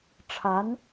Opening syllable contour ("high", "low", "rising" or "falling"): rising